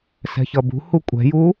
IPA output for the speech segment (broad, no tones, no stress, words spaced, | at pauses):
sɛ̤çʌbṳhu kʷʼɛ̤ju